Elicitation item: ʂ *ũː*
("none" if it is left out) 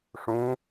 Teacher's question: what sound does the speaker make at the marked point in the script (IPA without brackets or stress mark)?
ũː